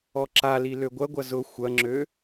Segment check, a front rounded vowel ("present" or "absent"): present